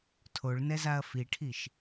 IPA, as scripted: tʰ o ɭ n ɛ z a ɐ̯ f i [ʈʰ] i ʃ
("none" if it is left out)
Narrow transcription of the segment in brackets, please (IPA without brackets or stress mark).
ʈʰ